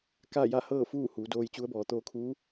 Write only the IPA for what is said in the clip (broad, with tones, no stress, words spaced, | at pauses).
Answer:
ka˥˨ja˥˨hɤː˥˨fuː˥˨ huː˩˧doː˧jt͡ɕu˧˥ə̯bɔː˩˧ t̪oː˧kʰuː˧˥